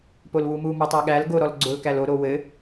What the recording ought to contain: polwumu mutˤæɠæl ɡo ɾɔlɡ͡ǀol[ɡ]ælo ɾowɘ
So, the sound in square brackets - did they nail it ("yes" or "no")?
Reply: no